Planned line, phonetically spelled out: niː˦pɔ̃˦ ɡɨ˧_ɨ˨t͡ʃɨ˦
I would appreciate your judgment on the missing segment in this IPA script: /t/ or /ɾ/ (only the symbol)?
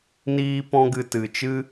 t